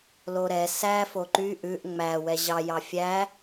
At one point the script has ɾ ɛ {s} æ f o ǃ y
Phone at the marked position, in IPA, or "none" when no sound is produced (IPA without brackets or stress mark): s